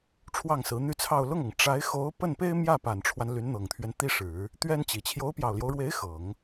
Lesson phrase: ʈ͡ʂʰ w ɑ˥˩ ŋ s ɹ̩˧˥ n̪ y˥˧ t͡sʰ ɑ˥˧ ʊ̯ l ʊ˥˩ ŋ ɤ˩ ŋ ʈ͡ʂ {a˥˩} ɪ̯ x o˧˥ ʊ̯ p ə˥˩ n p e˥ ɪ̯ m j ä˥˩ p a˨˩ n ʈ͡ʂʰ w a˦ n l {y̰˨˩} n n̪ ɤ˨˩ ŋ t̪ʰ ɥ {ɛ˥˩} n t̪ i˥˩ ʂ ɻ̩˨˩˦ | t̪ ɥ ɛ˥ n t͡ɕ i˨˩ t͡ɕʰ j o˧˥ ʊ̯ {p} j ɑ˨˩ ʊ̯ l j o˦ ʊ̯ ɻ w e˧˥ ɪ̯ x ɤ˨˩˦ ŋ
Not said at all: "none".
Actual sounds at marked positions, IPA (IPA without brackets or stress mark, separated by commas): a˧˥, y˧˥, ɛ˦, p